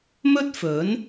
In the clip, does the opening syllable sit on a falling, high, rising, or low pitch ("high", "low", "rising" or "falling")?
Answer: high